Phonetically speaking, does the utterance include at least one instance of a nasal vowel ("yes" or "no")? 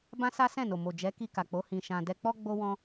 yes